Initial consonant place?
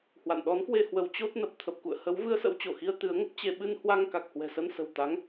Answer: glottal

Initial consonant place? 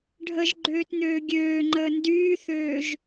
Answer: retroflex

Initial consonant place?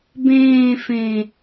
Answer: labial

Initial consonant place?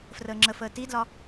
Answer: labial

